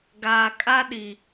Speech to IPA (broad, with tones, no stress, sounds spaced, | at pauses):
ɡ aː˨ kʼ a˦ ɗ i˨